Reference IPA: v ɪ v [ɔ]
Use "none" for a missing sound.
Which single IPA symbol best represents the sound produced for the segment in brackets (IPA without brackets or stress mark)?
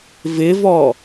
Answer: ɔ